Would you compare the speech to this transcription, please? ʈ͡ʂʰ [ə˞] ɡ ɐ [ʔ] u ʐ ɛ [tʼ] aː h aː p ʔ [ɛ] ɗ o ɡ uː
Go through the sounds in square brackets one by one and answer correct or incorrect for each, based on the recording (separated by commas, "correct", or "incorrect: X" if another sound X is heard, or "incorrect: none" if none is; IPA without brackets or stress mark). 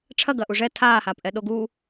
incorrect: ɐ, correct, incorrect: tʰ, correct